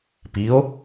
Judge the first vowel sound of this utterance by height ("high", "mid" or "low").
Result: high